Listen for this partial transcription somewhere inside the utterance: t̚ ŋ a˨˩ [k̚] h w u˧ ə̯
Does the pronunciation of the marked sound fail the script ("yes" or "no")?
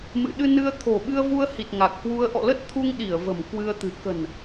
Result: no